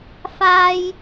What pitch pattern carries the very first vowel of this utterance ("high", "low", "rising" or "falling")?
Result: low